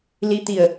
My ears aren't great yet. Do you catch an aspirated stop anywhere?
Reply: no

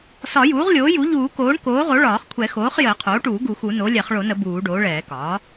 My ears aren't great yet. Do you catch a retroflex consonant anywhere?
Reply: yes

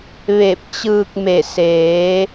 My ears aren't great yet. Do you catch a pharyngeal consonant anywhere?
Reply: no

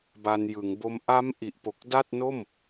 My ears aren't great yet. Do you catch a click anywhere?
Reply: no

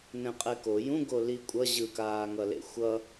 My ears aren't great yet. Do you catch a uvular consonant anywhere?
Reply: yes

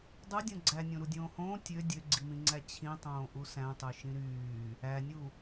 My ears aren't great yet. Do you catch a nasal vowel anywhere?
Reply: yes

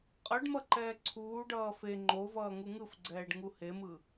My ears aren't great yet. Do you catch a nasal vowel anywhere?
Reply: no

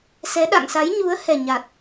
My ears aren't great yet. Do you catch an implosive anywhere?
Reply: yes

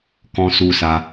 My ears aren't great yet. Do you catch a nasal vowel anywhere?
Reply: yes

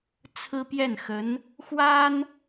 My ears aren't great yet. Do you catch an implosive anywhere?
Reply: no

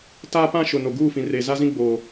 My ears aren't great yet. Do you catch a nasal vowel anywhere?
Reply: yes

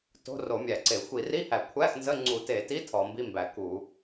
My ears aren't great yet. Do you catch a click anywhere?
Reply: yes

